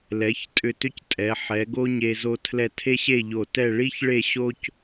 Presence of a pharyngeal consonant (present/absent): present